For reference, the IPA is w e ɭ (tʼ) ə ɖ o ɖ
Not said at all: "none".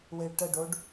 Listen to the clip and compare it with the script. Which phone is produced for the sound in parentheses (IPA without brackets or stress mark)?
ʈ